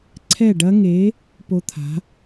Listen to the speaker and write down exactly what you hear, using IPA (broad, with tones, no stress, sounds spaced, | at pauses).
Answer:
ǀʰ ɛ˥˨ ɖ ɐ˦˥ ŋ e˨˥ | p o˦˥ t̪ʰ a̤˨˥